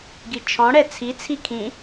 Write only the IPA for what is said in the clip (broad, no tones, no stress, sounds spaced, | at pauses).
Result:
ɡ i t͡ʃʰ ɔ̃ ɽ ɛ t͡sʰ i t͡sʰ i kʰ ĩ